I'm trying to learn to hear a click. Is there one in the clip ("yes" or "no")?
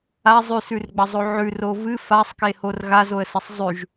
no